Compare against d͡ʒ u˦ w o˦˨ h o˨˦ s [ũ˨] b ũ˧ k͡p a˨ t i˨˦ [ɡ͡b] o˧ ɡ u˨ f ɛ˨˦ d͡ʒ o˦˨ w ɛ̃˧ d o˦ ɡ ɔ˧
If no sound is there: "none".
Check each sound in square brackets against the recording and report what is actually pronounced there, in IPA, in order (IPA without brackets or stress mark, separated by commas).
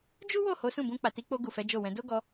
ũ˦˨, k͡p